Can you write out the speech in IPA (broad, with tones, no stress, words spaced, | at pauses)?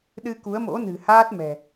ɗɨ˧ku˨˦ə̯mo̰˧˥ nɨ̤˨˩haː˦˥t̚ mɛ̤˨˩